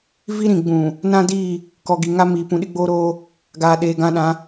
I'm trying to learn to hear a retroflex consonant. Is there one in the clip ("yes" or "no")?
no